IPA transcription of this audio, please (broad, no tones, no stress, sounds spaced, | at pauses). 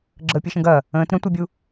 ɡ͡ǁ əː pʲ ɯ ʃ ə̃ ɡ ɐ | ə̃ː t ɾ ə̃ tʷ ɯ bʲ u